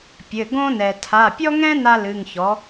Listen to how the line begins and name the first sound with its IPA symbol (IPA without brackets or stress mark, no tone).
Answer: pʲ